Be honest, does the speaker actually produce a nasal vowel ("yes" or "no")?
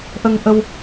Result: no